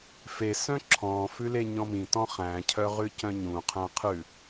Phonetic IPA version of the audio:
f e s œ̃ ǁʰ ɔ̃ f ʉ l e ɲ ɔ̃ m ĩ t ɔ̃ χ æ̃ cʰ œ ʁ ʉ c œ̃ ɲ ũ qʰ æ̃ qʰ ʉ

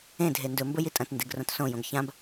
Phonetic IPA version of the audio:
ẽ dʱ e n d ɵ m b ɵ j i tʼ ɐ̃ t n d e ɡ r õ t s õ j õ ɡ ç ã b

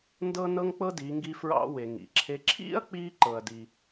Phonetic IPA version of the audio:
n d ɤ˥ n ɤ˥ ŋ k͡p ɤ˥ d i˩˧ ŋ ɡ i˧ f ɹ ɑ̰˥ w e˩ ŋ ḭ˩ ǁʰ e˧ ǁʰ ḭ˥ ɐ̯ k͡p i˧ ǃ ɤ˩ ɐ̯ d i˩

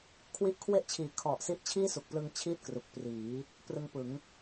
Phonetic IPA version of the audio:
kʰ w i˦˥ ʔ kʰ w e˥˩ ʔ t͡ɕʰ iː˨˩ kʰ ɔ˨˩ ʔ s i˦˥ ʔ t͡ɕʰ iː˥˩ s u˨˩ k̚ p l ɯ˧ ŋ t͡ɕʰ iː˥˩ t̚ k r u˨˩ k̚ p r iː˩˦ | p r ɯ˧ ŋ p ɯ˩˦ ŋ

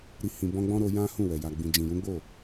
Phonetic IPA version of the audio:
ɾ i˨ h ĩ˨ b ɔ̃˧ ɡ͡b ɔ̃˦ ɾ o˧ j ã˦ h ũ˦˨ w ɛ˨ j a˨ ɡ͡b ĩ˨ d͡ʒ ĩ˨ j ũ˨˦ ɡ͡b o˦˨

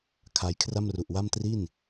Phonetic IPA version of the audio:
kʰ a˧ j kʰ r a˥˩ m r u˨˩ ʔ w a˥˩ m t r i˥˩ n

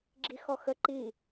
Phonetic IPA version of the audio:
ɡ͡ǁ i x ɔ x ə ǃ i

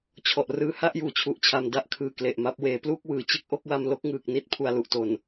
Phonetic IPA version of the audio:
t͡ɕʰ ɔ˨˩ ʔ r ɯː˦˥ h a˥˩ ʔ j uː˩˦ t͡ɕʰ u˨˩ ʔ t͡ɕʰ a˨˩ m d a˦˥ ʔ kʰ ɯː˧ k l e˨˩ ʔ m a˦˥ p̚ w eː˩˦ p l uː˥˩ k̚ w ɯː˩˦ t͡ɕ ɯ˦˥ k̚ ʔ o˦˥ k̚ w a˧ m l o˥˩ k̚ ŋ ɯː˨˩ k̚ n i˦˥ t̚ pʰ u˨˩ a̯ l u˨˩ ʔ t o˨˩ n

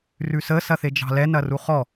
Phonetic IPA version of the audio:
r ʉ s ə s ɐ θ e d͡ʒ ɑ̤ l ɛ n ɐ r u χ ɔ

